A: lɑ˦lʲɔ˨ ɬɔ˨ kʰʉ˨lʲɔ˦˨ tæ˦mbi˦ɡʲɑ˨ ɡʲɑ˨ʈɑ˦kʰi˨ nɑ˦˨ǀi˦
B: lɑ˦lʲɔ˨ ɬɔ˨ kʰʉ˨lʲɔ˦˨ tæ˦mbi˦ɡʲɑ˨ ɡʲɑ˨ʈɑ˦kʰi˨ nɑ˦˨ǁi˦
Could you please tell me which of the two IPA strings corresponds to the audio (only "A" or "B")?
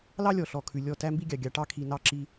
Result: B